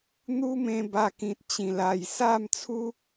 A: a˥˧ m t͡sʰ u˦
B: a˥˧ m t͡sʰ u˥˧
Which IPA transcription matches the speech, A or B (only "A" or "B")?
A